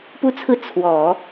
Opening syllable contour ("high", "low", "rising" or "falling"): falling